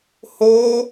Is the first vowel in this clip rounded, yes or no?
yes